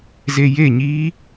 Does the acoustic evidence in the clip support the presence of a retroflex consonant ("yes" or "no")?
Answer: no